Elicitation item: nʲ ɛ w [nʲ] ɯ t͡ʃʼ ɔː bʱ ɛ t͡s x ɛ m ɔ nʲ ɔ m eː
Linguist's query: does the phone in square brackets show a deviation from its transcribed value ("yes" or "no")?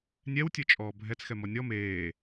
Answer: yes